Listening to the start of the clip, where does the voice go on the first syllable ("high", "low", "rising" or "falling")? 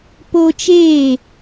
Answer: high